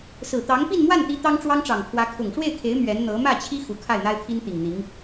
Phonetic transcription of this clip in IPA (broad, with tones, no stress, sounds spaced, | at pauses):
s ɹ̩˨˩ t̪ ɑ˧˥ ŋ p i˥˧ n m w a˥˩ n t̪ i˧˥ t̪ ɑ˥ ŋ ʈ͡ʂ w ɑ˥ ŋ ʈ͡ʂ ɑ˨˩ ŋ kʰ w ä˧˥ kʰ ʊ˨˩ ŋ ʂ w e˥˩ ɪ̯ kʰ e˧˥ ɪ̯ m ɥ ɛ˧˥ n n̪ ɤ˧˥ m ä˥˩ t͡ɕʰ i˥ x u˨˩ kʰ a˥˩ ɪ̯ n̪ a˥ ɪ̯ t̪ʰ i˥ n t̪ i˨˩ ŋ n̪ i˧˥ ŋ